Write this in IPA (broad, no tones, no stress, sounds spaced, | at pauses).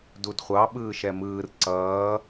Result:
d u d χʷ ɑ ɓ ɯː ʃ ɛ m ɯː r ǀ ʌː